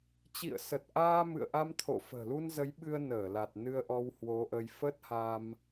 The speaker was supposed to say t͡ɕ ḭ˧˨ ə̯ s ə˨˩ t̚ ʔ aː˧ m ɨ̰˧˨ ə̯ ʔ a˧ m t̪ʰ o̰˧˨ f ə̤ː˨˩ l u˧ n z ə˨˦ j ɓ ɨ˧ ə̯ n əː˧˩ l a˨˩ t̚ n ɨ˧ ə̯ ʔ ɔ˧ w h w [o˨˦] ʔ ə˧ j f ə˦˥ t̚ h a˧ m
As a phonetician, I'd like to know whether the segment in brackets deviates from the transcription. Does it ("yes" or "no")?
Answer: no